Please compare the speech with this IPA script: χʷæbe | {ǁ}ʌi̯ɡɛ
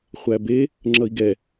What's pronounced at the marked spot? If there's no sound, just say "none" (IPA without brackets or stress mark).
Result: ŋ͡ǁ